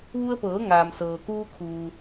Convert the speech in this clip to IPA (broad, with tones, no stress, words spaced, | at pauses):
ʋu˧ə̯pɤː˩˧ ŋaː˩msɤː˩kuː˧kʰuː˩